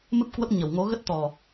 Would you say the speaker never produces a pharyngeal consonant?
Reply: yes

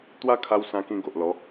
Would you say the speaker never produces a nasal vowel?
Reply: no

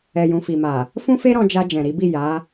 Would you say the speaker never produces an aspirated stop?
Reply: yes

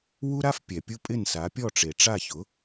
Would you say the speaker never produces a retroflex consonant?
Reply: no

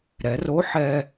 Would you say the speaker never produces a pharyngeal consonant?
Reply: no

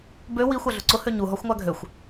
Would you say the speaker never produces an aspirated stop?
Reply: yes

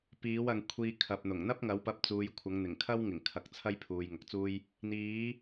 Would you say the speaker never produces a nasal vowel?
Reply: yes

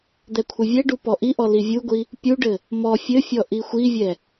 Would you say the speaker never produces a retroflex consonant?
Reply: no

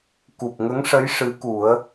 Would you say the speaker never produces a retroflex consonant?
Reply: no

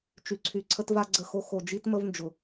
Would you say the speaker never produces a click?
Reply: no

